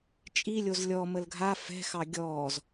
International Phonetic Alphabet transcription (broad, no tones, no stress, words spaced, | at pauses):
t͡ʃʼilʲoz lʲɔməl ɡʱa fɛ̤xɑ ɡʲɔːz